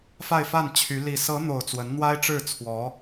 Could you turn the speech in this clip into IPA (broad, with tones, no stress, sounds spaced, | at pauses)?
f a˥˧ ɪ̯ f a˥˩ n t͡ɕʰ y˧˥ l i˨˩ s ɤ˧˥ n̪ o˨˩ ʊ̯ t͡s w ə˧˥ n n̪ w a˥ ɪ̯ ʈ͡ʂ ɻ̩˥˩ t͡sʰ w ɔ˧˥